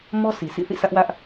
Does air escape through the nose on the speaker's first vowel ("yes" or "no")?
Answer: no